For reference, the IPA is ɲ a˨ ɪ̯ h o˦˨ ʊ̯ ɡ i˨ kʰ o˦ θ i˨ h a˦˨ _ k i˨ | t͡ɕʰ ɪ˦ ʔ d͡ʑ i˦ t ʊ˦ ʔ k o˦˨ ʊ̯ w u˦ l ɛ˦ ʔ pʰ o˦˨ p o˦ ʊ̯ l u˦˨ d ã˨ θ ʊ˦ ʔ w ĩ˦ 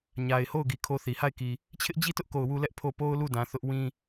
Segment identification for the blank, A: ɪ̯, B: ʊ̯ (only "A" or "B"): A